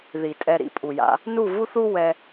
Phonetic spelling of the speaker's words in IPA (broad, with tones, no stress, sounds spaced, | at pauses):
ð i˨ tʼ ɛ˧ ɾ ḭ˨˦ pʼ u˨ j a̰˧ | n u˦˨ v u˦ θ u˦ w ɛ˧